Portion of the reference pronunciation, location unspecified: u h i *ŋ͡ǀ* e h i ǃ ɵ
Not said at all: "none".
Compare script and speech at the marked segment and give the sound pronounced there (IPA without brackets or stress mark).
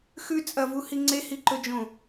ŋ͡ǀ